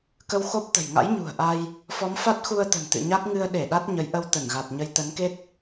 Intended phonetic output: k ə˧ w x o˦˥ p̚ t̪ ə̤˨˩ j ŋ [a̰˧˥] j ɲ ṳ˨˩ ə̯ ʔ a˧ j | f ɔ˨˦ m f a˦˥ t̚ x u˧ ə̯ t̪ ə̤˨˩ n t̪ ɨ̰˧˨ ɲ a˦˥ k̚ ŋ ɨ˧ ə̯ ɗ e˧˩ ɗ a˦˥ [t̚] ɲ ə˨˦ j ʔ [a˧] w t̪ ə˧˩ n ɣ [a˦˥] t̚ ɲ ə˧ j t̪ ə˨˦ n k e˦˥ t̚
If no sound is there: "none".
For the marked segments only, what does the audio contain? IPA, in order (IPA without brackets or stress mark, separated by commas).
a̰˧˥, t̚, ə˧, a˨˩